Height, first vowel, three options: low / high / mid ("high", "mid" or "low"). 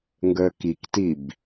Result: mid